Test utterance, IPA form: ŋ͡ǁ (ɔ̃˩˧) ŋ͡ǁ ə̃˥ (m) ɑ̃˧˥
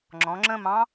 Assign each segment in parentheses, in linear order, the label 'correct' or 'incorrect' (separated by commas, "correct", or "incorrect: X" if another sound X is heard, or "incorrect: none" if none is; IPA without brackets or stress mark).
correct, correct